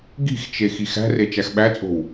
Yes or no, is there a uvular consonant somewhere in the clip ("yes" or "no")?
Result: no